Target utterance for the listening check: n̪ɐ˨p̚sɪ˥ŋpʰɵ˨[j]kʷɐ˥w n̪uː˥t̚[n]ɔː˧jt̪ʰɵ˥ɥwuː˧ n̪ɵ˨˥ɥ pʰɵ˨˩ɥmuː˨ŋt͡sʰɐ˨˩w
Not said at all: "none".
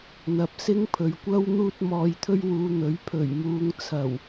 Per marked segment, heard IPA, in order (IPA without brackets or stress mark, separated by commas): ɥ, m